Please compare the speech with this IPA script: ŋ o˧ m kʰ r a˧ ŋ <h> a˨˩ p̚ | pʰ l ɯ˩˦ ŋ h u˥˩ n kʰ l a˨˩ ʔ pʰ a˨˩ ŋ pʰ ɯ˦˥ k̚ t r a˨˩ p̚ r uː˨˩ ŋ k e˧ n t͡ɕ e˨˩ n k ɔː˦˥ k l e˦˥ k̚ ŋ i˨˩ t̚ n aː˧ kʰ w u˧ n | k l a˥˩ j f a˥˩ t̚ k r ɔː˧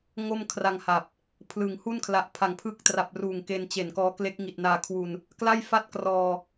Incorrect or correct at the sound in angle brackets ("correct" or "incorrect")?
correct